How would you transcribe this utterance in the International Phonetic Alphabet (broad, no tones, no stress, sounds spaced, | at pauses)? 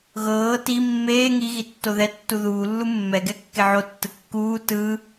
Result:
ɣ ɤː t i mː eː ŋ i ɣ i tː o ð ɛ tː u ð uː lː u mː ɛ ɡ ɛ kː e ʕ o tː ɯ kː uː t ɯ